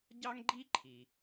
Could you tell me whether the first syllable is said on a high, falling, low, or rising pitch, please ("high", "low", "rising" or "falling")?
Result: high